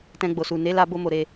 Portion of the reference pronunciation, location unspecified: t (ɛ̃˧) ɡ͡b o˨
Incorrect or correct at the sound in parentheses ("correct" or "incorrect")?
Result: correct